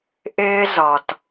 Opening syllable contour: high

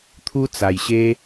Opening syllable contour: high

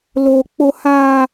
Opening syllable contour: high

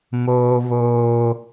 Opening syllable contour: high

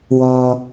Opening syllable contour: low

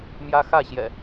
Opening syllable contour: high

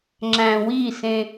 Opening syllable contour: low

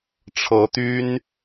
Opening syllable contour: rising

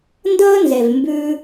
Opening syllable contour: high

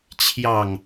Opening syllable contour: low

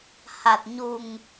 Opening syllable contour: low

